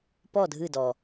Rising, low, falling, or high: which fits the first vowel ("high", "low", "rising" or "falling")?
falling